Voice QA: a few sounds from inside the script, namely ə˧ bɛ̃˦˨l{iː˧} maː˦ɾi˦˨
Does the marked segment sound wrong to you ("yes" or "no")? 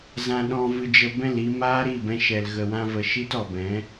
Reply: yes